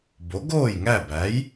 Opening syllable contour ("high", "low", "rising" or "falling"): rising